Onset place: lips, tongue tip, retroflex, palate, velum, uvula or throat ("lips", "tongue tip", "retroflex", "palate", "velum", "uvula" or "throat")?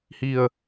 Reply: throat